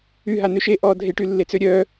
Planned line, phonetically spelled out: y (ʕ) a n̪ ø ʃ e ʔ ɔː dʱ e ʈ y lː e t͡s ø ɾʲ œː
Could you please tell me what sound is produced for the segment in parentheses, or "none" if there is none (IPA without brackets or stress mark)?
ɦ